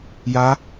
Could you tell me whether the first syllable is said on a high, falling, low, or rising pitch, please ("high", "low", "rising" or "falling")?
rising